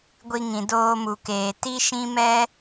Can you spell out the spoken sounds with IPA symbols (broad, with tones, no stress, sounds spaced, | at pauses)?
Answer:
ɡʷ i˧ ŋ ĩ˨ d oː˧ m u˨ k eː˨ t i˦ ʃ ĩ˦ m ɛ˦